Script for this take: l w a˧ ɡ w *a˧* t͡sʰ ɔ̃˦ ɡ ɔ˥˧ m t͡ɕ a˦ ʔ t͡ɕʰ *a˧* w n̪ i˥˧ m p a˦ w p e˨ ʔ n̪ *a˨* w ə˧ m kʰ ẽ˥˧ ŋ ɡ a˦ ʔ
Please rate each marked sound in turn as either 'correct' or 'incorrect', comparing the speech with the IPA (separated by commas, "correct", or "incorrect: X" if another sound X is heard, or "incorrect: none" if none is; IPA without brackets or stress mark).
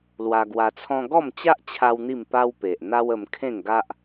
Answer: correct, incorrect: a˦, incorrect: a˦